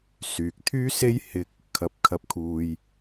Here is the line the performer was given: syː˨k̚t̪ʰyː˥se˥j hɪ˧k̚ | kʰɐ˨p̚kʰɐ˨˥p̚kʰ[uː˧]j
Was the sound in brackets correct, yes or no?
no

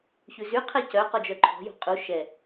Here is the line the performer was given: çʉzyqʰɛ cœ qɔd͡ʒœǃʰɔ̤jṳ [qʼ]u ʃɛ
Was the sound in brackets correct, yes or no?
yes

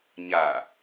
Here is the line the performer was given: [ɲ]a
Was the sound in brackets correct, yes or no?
yes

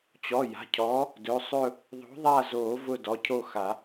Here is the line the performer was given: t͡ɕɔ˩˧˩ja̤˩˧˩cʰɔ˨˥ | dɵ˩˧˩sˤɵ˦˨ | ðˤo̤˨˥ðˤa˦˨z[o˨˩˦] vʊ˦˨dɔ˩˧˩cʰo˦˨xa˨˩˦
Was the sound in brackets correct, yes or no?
yes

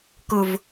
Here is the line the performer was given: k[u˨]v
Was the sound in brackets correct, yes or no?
no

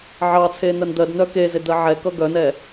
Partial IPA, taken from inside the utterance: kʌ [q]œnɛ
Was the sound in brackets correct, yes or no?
no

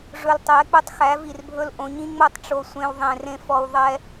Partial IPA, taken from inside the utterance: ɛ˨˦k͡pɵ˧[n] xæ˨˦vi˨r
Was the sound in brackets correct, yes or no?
no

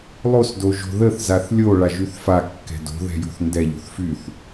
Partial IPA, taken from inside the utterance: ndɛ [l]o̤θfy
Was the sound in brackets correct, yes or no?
no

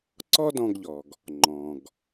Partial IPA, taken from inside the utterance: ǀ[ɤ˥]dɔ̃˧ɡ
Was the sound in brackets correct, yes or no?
no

